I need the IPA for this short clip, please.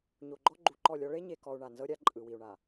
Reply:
ɲ o˨ ɡ͡ǃ ɔ˦ ɡ͡ǃ u˨ ǃ ɔ˦˨ lʲ ɔ˦ ɭ e˦ ɲ e˨ k ɔ˨ u̯ ɳ a˨ n z ɤ˦ ɾʲ a˦ ǃʼ ɯ˨ w i˨ u̯ ɳ a˨

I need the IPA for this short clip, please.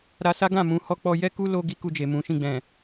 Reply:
ɾ a˧ s a˦ ɡ ã˦˨ m ũ˨˦ h ɔ˦ k͡p ɔ˦ j ɛ˦ k u˦ l o˦ ɡ i˦ k u˧ d͡ʒ e˨ m ũ˨˦ ʃ ĩ˦˨ ɡ͡b ɛ̃˨

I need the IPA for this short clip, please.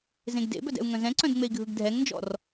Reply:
z ẽ ɡ d ḛ b œ d ɛ̰ u̯ ŋ œ̃ z ɛ̃ ǀ œ̃ d ŋ͡m e i̯ ɡʱ ɯ ɡ dʱ ɛ ŋ n d͡ʒ ɔ̰ r

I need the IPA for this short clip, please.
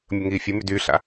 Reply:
mʲ ə ŋ iː fʲ ə m y d yː ɬ a̰

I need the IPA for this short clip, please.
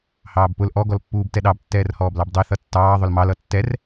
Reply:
h ɑː b p ʊ l ʔ ɔ ɡ ɔ l pː uː b t ɛ ɗ ɑ b tː ɛː r h ɔː b l ɑ b dˤ i θ ʌ tː ɑː ðˤ ʊ l m ɑ l ʌ tː ɛ r

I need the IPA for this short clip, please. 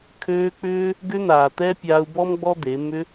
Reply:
kʰ øː˧ k͡p ʏː˦ | ɡ ʏ˧ n̪ aː˨ t̪ ɛ˧ pʲ aː˧ u̯ b ɔ˦ m ɡ͡b ɔ˦ d̪ e˨˦ m ʏ˧

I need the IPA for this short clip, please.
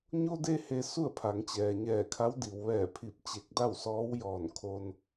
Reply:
ɲ o˧ d e˧ h e˩ s u˥˨ ə̯ pʰ a˩˧ ŋ t͡ɕ ɛː˩ ɲ ɛː˧˩ kʰ a˧˥ w d i˩ w ʋ ɛː˧˩ pʰ i˧˩ p̚ t͡ɕ e˧˩ k̚ d a˥˨ w s ɔː˧˥ w j ɔː˧˩ n kʰ o˧ n

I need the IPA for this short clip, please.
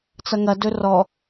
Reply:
t͡s ɐ ŋ ɐ d ɵ r ɔ

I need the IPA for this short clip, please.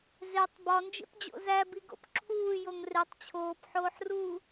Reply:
z e tˤ b ɒ n d͡ʒ ḛ p d͡ʑ o̰ z æ b i ɡ o̰ p ǁʰ uː j o ŋ r e tˤ t͡ɕʰ oː p ħ oː ħ r uː

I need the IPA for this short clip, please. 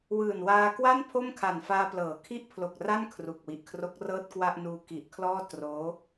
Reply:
w ɯː˨˩ n w aː˧ k w a˥˩ n pʰ o˥˩ m kʰ a˨˩ n f aː˧ p l ɤː˩˦ kʰ i˥˩ ʔ pʰ l o˨˩ k̚ r a˥˩ n kʰ r u˨˩ k̚ w i˨˩ ʔ kʰ r o˦˥ k̚ r ɤː˥˩ t̚ k w a˥˩ ʔ n uː˧ k i˨˩ ʔ kʰ l ɔː˥˩ t r oː˦˥

